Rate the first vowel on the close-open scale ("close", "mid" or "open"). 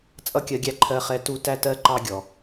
mid